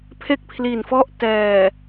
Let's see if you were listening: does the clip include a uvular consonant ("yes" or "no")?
no